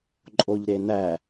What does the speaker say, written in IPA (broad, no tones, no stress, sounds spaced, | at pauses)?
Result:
ǃʼ o ʎ ɾ e n æ